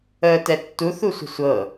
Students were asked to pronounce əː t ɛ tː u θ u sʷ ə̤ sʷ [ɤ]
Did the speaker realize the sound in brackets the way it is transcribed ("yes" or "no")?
yes